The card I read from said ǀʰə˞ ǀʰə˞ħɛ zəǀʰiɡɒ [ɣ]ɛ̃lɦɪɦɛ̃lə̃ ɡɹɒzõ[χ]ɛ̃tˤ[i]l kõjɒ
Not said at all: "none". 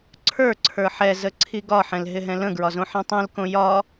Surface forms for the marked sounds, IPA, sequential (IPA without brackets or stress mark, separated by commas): ħ, ħ, ĩ